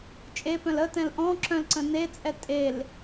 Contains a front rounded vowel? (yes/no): yes